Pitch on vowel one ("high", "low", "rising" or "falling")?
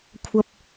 high